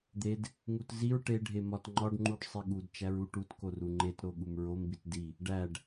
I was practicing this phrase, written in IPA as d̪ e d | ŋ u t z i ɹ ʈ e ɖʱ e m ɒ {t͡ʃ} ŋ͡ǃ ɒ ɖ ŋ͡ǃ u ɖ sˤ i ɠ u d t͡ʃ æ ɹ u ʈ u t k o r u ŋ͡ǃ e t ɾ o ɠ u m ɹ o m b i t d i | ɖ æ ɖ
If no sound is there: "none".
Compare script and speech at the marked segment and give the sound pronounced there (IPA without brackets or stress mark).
t